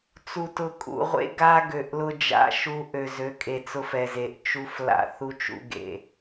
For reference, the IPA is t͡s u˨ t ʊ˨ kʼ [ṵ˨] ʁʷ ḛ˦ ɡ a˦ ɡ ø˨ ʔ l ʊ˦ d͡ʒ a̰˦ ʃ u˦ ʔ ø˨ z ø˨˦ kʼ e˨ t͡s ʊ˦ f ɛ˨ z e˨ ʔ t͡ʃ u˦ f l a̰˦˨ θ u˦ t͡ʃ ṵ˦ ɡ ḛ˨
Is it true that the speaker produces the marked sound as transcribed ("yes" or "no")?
yes